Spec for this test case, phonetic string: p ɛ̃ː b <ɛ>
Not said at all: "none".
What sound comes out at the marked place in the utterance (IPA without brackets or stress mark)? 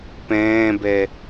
ɛ